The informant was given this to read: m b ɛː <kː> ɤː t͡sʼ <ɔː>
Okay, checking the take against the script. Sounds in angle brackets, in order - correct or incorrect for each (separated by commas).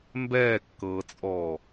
correct, correct